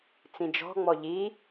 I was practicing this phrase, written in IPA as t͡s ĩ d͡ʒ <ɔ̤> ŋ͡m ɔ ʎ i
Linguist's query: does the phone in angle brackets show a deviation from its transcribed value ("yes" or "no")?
no